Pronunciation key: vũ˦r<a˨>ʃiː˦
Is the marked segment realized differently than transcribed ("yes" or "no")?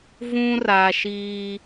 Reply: no